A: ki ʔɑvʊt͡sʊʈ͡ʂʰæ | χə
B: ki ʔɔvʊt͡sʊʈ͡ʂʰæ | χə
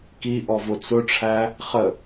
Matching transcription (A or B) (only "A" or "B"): B